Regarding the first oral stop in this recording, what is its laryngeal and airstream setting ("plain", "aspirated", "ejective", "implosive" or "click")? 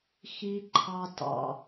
click